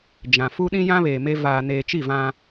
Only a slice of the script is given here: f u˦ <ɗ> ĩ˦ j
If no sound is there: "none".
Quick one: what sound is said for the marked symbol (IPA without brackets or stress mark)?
ɗ